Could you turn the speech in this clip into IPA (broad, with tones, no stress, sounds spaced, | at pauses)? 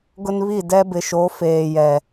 ɡ ʊ˦ n β i˦˨ d ɛ˦ b ɪ˨ ʃ o˨˦ f eː˨ j ɛ˨